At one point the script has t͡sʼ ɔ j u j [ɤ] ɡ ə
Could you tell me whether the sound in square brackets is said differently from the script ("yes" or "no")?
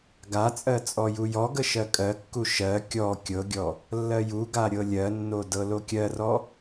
yes